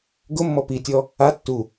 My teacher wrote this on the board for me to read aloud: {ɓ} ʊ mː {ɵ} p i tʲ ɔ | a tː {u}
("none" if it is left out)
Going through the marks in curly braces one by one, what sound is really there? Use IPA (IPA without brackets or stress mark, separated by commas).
ɡ, ɔ, u